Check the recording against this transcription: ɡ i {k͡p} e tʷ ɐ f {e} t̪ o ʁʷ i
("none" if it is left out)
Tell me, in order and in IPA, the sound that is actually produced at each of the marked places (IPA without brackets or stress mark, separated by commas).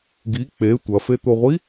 k͡p, e